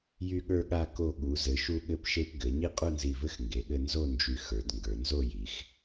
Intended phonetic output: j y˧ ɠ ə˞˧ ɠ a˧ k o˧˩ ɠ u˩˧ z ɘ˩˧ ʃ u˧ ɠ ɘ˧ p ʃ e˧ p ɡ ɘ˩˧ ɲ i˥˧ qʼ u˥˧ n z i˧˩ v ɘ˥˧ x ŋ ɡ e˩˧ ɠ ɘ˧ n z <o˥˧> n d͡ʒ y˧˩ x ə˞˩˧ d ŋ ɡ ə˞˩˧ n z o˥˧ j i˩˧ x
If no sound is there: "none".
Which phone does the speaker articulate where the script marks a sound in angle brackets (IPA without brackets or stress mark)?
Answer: o˥˧